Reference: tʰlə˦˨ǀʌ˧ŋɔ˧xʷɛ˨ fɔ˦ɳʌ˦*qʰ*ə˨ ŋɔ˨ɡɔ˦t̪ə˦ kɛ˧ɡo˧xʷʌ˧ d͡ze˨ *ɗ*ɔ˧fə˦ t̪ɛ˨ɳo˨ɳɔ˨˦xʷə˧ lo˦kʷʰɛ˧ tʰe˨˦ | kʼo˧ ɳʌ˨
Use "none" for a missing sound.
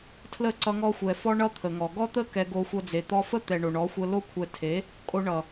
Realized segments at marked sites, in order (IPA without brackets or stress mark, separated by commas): t̪ʰ, t̪